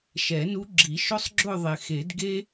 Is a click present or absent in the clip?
present